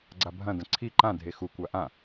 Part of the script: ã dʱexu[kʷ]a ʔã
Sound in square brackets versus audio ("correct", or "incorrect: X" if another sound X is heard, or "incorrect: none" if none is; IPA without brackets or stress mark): correct